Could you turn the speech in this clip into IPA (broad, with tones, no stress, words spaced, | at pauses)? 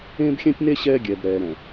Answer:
ẽː˦bxʲɛ̃˦tʲne˦ ɕɛː˦ɡʲɛː˨b ɾɛː˨ɾɛ̃˨